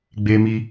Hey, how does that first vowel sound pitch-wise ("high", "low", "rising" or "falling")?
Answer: high